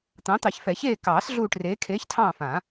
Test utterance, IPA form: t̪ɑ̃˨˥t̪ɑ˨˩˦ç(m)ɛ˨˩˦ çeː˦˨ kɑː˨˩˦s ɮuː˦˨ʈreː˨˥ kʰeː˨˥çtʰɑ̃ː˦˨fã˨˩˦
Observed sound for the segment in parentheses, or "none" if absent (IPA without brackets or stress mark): f